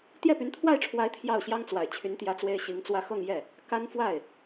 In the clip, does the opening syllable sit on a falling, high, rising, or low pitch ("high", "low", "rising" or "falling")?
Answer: falling